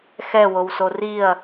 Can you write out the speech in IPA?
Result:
xɛwowso riɐ̯

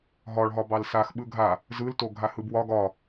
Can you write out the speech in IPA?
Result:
ɦɒɭɦɒ bɑlsaxɓɯ ɡʱa | zɯlto ɡʱahɯbwɒ ɡɒ

